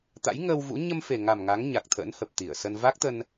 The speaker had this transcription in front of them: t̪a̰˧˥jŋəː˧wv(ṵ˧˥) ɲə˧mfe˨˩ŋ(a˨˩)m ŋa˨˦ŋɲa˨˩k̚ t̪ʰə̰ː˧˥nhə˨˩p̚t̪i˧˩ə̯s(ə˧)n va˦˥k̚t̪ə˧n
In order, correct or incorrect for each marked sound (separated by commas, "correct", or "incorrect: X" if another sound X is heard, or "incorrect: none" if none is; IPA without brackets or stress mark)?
correct, correct, correct